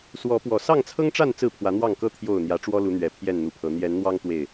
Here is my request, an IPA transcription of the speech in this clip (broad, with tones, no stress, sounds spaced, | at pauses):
s w ɔ˨˦ p w ɔ˨˩ s ɑ˥˨ ŋ t͡sʰ ɤ˦ ŋ ʈ͡ʂ a˥˨ n t͡s ɹ̩˥˨ pʰ w ä˨˦ n̪ w ɑ˥˨ ŋ k ɤ˦ t̪ʰ j o˨˩ ʊ̯ n̪ j ä˨˦ ʈ͡ʂ w ɔ˦ l u˨˦ n̪ ɥ ɛ˨˩ pʰ j ɛ˥˨ n n̪ u˨˩ pʰ ɤ˨˦ n̪ j ɛ˨˦ n n̪ w ɑ˦ ŋ t̪ w e˥˨ ɪ̯